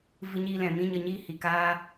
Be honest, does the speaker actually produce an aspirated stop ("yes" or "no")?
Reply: no